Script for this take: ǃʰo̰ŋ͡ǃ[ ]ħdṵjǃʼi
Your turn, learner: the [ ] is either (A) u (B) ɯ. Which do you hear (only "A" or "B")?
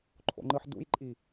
B